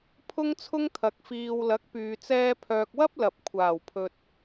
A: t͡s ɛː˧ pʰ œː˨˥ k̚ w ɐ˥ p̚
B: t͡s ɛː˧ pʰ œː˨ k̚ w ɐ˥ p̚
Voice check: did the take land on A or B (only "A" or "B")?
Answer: B